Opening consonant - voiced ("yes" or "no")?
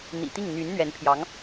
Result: yes